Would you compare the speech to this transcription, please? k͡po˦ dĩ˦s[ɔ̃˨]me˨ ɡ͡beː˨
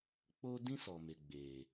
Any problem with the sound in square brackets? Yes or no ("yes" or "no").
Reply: yes